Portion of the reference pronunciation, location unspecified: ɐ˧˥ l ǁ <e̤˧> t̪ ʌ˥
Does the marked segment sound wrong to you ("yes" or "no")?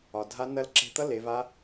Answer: no